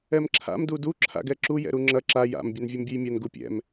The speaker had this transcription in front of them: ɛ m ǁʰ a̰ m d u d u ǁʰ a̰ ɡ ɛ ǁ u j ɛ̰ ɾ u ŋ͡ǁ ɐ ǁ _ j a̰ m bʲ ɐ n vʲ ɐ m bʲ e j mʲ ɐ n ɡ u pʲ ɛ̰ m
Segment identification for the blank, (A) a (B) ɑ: A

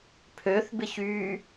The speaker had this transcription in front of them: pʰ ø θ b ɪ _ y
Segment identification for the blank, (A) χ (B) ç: B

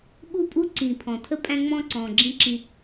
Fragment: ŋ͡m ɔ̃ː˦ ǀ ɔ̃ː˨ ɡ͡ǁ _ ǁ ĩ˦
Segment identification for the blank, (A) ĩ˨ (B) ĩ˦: B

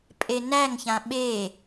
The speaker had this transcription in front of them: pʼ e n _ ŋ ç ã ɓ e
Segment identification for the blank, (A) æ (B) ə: A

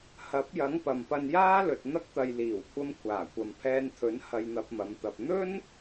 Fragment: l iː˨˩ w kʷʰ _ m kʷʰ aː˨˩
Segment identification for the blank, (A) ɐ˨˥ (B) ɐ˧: B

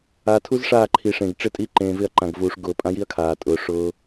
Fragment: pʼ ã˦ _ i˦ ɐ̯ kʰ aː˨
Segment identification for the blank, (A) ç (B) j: B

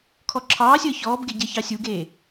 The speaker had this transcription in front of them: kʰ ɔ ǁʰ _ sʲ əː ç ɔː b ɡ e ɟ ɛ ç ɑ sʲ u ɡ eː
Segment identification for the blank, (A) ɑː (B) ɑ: A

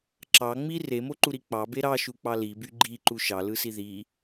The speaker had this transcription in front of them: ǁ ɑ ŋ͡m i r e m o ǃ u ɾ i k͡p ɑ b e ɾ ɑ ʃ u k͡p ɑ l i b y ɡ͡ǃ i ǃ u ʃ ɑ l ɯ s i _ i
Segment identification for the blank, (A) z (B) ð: B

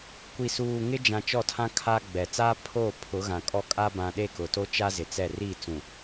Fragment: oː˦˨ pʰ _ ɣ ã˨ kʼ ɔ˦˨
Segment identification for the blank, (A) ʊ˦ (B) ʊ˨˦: B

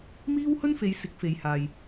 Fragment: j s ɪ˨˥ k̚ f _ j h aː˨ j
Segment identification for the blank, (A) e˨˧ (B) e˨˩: A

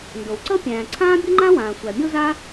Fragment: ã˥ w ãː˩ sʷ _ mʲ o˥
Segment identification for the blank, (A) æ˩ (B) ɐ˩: A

